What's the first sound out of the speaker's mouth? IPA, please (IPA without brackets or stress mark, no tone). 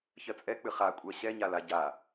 ç